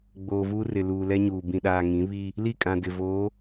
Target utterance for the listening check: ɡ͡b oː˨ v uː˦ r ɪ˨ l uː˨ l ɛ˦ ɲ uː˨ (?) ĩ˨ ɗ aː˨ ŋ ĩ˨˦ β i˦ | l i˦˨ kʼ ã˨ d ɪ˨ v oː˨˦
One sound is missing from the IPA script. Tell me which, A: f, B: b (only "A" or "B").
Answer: B